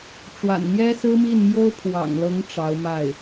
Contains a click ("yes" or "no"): no